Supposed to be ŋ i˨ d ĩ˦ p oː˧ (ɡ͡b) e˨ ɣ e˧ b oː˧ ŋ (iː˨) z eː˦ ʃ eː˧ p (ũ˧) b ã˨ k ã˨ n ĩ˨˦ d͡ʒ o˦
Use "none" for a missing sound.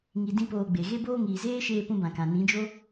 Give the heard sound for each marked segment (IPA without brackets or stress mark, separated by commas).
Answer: ɡ͡b, iː˨, ũ˧